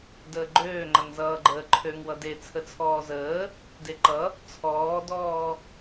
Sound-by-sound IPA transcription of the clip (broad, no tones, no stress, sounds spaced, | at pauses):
d əː ɡ͡ǃ øː ŋ͡ǃ ʌ ŋ z ʌː ɡ͡ǃ əː ǃʰ ø ŋ w ʌ d e t͡sʰ ə t͡sʰ ɔː z əː | d e ǃ ʌ | t͡sʰ ɔː d ɔː